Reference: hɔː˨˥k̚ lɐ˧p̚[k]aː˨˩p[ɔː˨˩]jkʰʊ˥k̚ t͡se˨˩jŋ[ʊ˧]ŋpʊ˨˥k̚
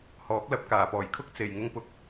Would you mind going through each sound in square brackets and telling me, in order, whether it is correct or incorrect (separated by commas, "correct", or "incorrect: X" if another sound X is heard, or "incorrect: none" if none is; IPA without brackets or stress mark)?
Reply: correct, correct, correct